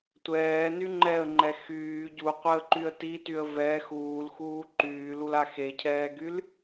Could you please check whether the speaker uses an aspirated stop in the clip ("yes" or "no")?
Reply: yes